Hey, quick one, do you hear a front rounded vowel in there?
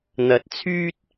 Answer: yes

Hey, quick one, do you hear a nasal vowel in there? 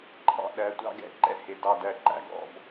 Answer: no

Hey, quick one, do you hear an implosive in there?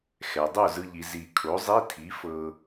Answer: no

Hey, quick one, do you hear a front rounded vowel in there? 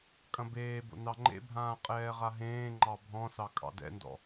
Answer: no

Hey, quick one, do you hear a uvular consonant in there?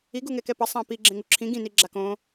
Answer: no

